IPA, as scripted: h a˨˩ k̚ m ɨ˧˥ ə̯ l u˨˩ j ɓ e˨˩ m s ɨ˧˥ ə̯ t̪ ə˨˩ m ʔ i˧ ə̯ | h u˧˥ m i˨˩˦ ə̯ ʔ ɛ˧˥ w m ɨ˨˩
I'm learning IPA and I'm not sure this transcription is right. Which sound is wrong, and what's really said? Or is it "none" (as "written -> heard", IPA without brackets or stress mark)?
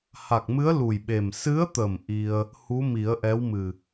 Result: none